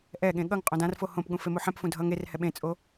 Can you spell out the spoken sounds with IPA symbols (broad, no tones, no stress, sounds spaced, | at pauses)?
ʔ ɛ ɠ ẽ ɠ ʌ ŋ qʼ õ d ã r f o h õ p ɠ ũ f e m u ħ ɛ̃ p f ũ dʱ ʌ ŋ e r h ɛ ɓ ẽ t͡sʼ o